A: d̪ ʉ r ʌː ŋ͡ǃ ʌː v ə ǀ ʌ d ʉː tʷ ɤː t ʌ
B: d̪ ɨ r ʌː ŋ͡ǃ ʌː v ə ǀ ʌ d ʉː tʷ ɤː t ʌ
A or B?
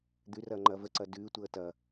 A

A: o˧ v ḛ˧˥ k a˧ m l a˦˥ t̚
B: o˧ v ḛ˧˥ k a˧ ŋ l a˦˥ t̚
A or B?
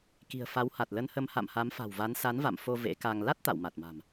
B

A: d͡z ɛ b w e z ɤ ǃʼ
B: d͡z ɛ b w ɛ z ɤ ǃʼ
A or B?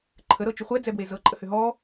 A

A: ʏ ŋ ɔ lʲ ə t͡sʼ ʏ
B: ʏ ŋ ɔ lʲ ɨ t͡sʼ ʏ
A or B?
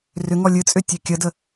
B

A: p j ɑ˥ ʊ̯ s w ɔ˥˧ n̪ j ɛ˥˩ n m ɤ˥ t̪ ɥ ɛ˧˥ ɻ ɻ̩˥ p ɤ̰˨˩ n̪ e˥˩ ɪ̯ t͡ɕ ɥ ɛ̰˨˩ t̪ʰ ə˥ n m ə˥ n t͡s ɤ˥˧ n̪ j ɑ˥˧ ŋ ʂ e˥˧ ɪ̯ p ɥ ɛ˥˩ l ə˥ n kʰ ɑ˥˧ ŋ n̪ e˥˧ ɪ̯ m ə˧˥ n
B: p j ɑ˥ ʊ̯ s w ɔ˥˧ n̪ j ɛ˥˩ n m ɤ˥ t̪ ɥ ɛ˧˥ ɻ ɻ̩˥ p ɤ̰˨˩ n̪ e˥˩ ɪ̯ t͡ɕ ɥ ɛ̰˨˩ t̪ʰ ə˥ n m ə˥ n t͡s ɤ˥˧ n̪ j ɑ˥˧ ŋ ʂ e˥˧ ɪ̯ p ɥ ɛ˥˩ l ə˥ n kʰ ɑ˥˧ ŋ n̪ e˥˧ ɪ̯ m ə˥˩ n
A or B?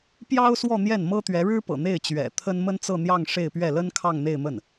B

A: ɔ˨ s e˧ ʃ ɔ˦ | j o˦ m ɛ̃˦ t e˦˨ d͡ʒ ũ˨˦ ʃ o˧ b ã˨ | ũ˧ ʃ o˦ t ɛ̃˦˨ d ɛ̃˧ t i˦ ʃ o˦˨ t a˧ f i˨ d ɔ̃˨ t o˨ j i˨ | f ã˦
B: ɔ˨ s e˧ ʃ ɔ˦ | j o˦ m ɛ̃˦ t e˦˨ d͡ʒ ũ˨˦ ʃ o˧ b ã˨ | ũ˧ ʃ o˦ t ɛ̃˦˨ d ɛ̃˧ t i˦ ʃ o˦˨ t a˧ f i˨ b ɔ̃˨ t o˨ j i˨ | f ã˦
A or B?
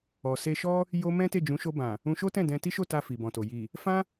B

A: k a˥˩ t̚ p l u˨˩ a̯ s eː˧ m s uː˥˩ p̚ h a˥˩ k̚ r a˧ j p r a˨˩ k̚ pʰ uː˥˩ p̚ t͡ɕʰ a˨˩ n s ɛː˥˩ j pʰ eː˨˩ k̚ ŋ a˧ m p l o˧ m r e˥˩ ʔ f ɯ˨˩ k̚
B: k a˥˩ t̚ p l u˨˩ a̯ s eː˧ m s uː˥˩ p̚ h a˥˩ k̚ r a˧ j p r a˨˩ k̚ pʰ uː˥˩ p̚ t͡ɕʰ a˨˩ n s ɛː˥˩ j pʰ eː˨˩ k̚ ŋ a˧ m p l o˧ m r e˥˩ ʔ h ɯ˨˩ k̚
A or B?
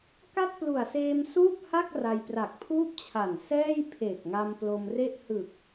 B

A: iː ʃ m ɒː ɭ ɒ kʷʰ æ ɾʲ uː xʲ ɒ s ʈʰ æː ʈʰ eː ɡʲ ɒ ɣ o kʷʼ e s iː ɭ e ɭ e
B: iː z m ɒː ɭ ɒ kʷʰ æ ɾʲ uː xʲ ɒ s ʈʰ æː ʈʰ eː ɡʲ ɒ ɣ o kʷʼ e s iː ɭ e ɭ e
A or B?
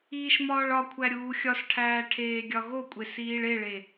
A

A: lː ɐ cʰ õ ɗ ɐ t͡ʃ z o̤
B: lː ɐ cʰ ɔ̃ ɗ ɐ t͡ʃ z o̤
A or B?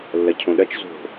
A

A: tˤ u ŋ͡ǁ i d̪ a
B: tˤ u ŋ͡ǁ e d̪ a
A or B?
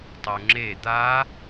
B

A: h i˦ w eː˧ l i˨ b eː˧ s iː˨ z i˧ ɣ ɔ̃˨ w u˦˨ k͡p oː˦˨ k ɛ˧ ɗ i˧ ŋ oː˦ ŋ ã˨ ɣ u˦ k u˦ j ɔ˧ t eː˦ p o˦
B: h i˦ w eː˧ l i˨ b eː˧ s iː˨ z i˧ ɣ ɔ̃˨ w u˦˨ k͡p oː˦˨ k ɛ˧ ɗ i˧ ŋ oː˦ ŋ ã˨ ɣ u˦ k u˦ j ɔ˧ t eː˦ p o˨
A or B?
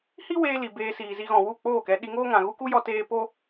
A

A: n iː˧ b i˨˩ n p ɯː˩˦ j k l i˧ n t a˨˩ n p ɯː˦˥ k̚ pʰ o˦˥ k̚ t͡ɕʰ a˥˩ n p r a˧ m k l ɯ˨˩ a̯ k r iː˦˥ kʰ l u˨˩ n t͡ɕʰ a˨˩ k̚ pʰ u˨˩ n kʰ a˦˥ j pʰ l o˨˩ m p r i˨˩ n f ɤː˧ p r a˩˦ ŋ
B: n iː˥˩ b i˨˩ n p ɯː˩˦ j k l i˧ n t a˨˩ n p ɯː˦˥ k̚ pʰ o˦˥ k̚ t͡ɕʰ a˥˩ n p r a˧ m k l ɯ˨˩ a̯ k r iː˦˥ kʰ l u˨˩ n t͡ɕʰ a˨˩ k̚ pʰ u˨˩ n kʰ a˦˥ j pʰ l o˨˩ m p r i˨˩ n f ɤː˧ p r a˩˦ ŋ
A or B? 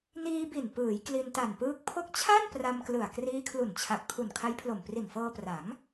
A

